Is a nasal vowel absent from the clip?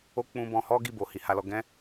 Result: no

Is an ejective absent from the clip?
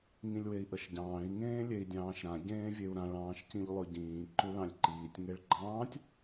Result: yes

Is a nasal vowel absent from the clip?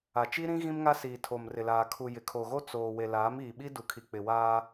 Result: no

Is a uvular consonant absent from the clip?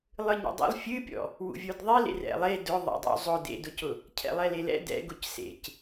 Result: yes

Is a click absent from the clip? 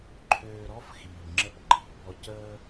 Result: no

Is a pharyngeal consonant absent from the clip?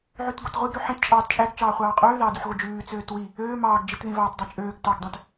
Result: no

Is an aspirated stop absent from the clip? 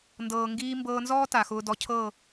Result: no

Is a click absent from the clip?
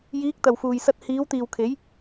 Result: yes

